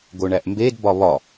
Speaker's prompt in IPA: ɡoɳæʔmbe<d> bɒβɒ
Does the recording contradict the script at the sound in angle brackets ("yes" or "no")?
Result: no